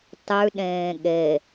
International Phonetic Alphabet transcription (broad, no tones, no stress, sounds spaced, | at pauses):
tˤ ʉ ɗ ẽː ɠ e